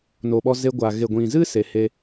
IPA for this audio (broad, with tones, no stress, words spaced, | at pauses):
no˨ɓɔ˧ ze˧ɡʷa˨ ɣe˨ɡʷĩ˨zɨ˦ se˨he˧